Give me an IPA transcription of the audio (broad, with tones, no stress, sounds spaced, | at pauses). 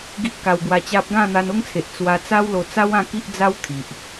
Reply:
ɡ i˦ ʔ k a˧ w ɡ w a˧ t͡ɕ a˦ p̚ ɡ ã˥˧ n̪ a˧ n o˦ ŋ t͡sʰ e˨ ʔ t͡s w a˧ t͡s a˦ w l o˧ t͡s a˦ w ã˥˧ k i˦ ʔ d͡z a˦ w t̪ʰ i˨ ʔ